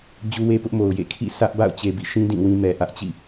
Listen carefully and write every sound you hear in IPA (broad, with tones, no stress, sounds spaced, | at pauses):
d͡ʑ u˦ w e˦ p ʊ˦ ʔ m o˨ ʊ̯ j ḛ˦˨ kʰ ḭ˦˨ s ä˦ ʔ b a̰˦˨ ʊ̯ t͡ɕ e˨ b ḭ˦˨ ʃ ĩ˦ d ĩ˦˨ w ĩ˦ m ɛ˨ ʔ ä˦ ʔ t͡ɕ ḭ˦˨